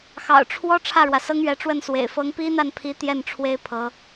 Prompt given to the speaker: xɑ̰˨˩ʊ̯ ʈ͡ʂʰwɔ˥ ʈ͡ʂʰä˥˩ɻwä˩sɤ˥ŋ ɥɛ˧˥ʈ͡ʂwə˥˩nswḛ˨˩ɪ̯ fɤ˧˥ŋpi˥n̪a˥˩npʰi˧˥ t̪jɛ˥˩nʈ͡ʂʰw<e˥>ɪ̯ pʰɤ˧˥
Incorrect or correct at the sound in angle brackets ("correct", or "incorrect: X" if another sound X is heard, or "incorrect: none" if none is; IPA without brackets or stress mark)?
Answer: correct